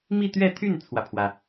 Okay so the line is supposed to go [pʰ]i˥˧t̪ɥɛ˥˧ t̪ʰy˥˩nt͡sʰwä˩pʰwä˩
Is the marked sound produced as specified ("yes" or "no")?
no